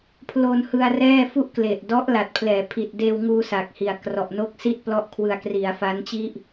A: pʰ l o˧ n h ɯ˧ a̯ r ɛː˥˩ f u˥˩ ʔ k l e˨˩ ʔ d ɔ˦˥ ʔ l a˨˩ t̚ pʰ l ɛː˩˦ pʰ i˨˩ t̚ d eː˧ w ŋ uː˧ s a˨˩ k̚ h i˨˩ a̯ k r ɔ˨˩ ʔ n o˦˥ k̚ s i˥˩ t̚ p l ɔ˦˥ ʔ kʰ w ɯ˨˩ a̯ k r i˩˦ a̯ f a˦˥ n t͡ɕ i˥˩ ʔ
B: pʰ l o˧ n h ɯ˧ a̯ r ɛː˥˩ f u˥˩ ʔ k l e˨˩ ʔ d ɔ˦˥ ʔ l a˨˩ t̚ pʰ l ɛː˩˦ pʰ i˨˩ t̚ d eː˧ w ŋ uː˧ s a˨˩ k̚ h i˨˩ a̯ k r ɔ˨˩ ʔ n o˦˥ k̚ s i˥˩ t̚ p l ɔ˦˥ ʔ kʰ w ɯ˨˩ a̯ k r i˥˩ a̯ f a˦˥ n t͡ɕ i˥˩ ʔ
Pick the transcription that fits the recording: A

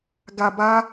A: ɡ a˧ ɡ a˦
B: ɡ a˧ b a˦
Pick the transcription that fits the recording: B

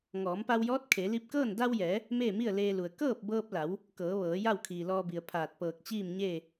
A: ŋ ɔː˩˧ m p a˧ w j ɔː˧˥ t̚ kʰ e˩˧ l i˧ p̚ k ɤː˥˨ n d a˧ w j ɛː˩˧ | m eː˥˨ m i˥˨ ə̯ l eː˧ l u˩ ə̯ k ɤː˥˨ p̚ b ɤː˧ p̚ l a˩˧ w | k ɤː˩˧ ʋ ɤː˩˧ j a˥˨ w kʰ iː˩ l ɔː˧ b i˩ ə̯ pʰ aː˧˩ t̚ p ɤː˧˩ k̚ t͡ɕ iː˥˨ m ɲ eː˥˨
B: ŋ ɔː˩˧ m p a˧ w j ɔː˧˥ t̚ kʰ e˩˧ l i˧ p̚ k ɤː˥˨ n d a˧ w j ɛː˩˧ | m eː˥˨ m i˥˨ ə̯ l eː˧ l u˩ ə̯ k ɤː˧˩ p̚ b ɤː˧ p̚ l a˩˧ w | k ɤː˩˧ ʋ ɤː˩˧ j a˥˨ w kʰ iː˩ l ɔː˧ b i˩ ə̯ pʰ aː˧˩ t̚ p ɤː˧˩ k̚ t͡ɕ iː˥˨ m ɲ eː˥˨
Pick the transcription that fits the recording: A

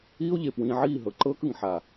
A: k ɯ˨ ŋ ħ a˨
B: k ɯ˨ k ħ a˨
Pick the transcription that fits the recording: A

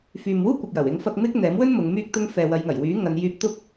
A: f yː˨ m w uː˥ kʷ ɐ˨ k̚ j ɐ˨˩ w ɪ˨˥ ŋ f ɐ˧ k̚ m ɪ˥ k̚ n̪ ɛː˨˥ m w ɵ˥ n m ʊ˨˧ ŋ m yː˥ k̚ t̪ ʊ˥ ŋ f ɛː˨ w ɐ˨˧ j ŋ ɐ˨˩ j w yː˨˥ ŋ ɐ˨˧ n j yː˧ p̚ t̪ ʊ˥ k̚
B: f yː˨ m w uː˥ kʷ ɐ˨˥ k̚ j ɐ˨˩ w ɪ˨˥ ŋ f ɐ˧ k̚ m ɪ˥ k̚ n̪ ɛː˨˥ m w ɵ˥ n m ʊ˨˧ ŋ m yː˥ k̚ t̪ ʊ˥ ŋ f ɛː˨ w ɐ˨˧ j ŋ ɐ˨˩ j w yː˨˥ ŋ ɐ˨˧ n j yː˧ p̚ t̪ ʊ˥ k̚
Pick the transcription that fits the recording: A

